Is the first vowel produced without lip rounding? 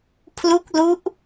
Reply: no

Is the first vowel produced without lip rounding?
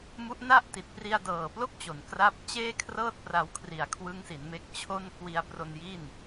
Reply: no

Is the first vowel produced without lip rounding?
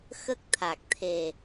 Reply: yes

